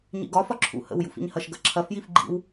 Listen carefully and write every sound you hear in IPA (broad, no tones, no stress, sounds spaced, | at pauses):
ɲ ḭ ɡ ɒ f ɒ ǁʰ ṵ h ə̰ w j ṵ f ḭ ɲ h ɐ ʃ ɡ ɐ ǁʰ ɐ f j i f ɡ͡ǃ ḭ w